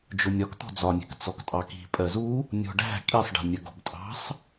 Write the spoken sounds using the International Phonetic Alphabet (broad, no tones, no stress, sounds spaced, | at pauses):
d͡ʒ ʊ nʲ ɒ k t̪ ɔ̤ d͡z ɒ nʲ ɛ̤ k t͡s ɔ k tʼ ɑ k i̤ pʼ ɜ z u | nʲ ɔ̤ ɖ æ̤ kʼ i sˤ ɖ ɛ̤ nʲ ə ɡ ɔ̤ b tʼ ɑ̤ sˤ